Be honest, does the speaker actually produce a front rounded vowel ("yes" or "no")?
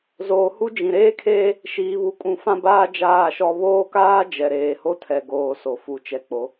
no